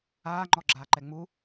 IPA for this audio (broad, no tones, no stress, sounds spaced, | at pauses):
aː ŋ͡ǃ ɔ ɡ͡ǁ aː ǃ ɛ ŋ͡m u